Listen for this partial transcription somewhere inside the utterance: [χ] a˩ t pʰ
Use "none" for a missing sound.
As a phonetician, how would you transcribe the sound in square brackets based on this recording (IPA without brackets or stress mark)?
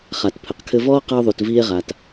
χ